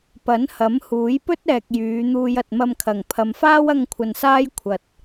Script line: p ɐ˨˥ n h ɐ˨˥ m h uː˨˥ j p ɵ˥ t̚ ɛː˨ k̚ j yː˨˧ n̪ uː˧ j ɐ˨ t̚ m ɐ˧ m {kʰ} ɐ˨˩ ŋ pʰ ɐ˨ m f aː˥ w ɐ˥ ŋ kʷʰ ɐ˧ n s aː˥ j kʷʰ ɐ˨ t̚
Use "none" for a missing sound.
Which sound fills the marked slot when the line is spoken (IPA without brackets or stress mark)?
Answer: kʰ